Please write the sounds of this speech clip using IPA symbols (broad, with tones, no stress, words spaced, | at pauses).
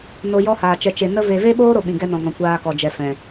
no˧jɔ˦haː˨ t͡ʃɛ˨t͡ʃe˨ nə˧ve˨ve˦ɓoː˦ ɾo˧ɓĩ˨ ɡɛ˦nɔ̃˨ŋɔ̃˨ kʷaː˧kɔ˨d͡ʒɛ˨ fɛ̃˨